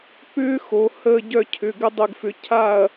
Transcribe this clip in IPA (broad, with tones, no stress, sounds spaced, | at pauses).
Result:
p ʏː˦˥ x o˩˧ h əː˦˨ ɟ œ˦˨ cʰ ʏ˩˧˩ ɡ ə˦˥ dˤ ʏ˦˨ ɡ f ʏ˨˥ cʰ a˦˨ ɐ̯